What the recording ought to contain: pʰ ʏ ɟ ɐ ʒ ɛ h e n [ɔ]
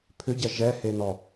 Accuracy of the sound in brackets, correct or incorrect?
correct